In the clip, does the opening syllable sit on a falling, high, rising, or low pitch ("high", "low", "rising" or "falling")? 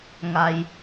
low